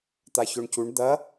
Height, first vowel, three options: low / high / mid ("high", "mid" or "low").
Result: low